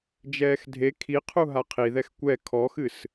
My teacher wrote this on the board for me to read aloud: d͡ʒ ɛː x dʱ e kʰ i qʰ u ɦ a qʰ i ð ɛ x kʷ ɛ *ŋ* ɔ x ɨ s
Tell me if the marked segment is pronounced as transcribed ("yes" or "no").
no